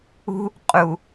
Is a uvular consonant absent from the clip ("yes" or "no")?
no